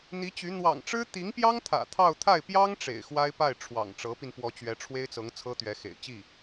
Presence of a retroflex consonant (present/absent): present